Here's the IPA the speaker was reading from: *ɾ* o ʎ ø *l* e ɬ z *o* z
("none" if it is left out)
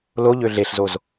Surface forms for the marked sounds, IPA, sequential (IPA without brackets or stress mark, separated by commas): l, ɮ, o